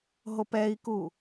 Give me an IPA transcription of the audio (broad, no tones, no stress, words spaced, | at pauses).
ɦopɛi̯ku